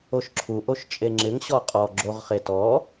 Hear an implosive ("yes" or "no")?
no